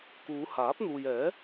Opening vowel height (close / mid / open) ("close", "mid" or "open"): close